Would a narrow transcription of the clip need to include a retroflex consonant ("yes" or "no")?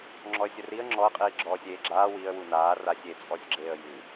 no